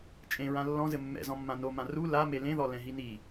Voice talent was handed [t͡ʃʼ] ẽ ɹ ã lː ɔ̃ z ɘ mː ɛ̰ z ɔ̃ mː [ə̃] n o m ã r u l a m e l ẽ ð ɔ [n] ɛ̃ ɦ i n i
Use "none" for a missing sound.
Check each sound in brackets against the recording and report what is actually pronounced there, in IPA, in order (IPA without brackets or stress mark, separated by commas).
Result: t͡ʃʼ, ã, l